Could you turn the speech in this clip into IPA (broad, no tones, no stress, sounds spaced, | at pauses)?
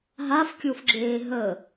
ɦ a f kʲ o f ɡ͡ǁ eː ɦ ə